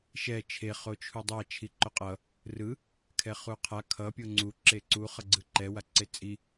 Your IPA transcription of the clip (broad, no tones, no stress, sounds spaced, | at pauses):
ʃ ɛ t͡ʃʰ e χ o t͡ʃʰ u dˤ a t͡ʃʰ i ǃ o qʼ ʌ | r ɯ | kʰ ɛ χ u qʰ a kʰ ʌ pʲ o ŋ͡ǀ u ǁ e ǀ u χ ʌ ɡ͡ǀ ɯ ǃ ɛ w a ǀ e t͡sʼ i